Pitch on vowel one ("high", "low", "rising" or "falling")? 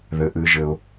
low